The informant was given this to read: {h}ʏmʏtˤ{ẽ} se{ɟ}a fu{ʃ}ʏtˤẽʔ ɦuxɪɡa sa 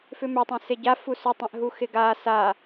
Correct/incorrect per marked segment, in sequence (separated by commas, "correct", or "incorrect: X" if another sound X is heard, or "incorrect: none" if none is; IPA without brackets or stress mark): incorrect: f, correct, correct, incorrect: s